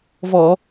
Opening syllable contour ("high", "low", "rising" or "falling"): low